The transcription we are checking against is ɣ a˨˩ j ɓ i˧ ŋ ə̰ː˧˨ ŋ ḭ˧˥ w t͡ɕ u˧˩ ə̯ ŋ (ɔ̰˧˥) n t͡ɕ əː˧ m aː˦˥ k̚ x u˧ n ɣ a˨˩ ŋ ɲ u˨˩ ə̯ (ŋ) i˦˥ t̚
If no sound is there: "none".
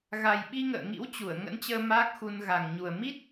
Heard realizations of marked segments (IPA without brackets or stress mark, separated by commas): ə̰˧˥, m